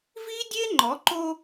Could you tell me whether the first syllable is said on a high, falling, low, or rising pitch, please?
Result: high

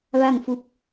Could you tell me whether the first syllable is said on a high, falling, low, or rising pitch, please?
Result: falling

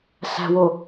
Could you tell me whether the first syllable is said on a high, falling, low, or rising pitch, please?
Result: low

